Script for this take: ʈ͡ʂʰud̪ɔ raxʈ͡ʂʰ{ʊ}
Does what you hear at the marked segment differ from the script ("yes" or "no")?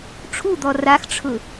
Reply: no